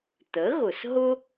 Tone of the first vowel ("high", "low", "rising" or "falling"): rising